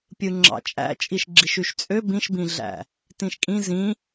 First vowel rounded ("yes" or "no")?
no